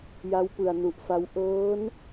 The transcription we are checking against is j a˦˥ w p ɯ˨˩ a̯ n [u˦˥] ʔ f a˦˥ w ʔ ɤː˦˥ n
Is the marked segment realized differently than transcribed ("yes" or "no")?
yes